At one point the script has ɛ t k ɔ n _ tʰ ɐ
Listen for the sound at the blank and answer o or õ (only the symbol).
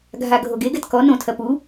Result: õ